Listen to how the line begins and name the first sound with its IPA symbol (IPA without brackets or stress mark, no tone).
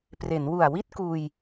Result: p